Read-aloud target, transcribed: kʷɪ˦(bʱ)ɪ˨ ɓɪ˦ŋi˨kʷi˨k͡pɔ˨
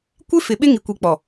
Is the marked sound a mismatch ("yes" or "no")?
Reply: yes